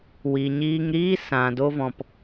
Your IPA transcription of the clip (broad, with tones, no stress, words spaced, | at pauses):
wi˨ɲiː˧ŋɾiː˦ sã˨ do˧vɔ̃˨p